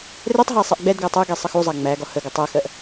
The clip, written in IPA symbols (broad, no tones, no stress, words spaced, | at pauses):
rɛtˤɦæ sˤɛʔɡ͡bɛdɡæ tˤɜɡɛ sˤəxuzˤæ ŋ͡mæɡɒ həɡə tˤæxɜʔ